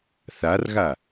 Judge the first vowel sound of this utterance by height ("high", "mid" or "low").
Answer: low